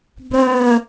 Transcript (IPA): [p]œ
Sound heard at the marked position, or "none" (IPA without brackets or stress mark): b